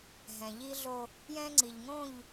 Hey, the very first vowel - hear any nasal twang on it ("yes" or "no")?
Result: yes